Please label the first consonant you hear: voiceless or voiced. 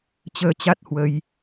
voiceless